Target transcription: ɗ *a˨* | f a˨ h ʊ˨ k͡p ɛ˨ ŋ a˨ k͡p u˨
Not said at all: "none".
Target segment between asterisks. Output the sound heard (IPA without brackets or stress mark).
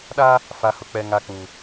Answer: a˦